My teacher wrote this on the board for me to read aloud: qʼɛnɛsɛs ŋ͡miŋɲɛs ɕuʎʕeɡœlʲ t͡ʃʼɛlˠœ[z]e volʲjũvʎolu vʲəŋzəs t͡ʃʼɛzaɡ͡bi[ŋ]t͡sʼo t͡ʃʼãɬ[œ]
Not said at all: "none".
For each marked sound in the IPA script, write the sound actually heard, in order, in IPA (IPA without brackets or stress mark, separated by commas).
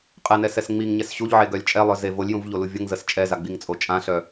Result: z, ŋ, œ